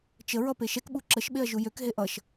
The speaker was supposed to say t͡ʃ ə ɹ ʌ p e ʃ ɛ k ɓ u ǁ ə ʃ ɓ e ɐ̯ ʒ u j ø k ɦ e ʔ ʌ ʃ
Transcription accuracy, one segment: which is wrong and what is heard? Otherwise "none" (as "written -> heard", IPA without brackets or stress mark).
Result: none